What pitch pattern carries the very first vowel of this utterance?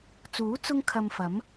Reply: rising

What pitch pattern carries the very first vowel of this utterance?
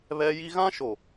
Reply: high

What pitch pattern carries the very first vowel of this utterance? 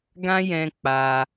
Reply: high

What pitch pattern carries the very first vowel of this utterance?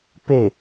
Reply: falling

